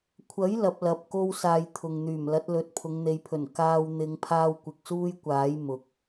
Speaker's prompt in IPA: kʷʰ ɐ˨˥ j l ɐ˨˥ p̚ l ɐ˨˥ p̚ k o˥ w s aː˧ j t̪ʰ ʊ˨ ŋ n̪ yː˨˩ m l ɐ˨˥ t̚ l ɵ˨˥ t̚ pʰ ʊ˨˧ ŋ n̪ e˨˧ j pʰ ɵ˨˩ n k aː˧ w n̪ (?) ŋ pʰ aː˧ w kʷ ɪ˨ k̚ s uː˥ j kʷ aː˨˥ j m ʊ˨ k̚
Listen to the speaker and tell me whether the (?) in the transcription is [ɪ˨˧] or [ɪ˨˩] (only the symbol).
ɪ˨˧